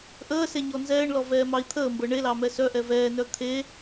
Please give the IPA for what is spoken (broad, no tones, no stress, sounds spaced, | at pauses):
ʔ əː s e ɲ ɔ n z ɛː ɳ l ɔ v ɛː m ɑ i̯ t̪ʰ əː m b ɤ ɳ e l ɑ m ɛ s œ ʔ ɛ v ɛː n œ t̪ʰ e